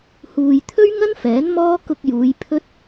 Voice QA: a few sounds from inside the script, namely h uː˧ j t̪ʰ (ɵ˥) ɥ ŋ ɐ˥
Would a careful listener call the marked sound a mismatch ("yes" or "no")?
no